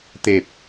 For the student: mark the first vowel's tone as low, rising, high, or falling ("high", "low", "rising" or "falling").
low